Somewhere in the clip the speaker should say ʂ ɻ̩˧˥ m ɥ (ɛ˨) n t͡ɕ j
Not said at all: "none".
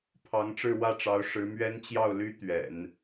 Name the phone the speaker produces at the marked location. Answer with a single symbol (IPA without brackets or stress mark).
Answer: ɛ˥